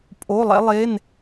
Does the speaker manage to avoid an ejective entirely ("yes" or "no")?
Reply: no